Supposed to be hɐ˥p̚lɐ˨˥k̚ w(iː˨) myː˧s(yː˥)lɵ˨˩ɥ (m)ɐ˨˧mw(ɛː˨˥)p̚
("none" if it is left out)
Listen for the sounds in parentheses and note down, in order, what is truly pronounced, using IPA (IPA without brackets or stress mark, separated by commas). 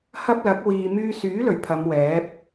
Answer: iː˨, yː˨˥, pʰ, ɛː˨˥